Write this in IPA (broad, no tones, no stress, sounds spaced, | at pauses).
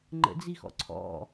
ŋ͡ǃ ə̰ d͡z i x ɔ̰ ǀʰ ɔ̰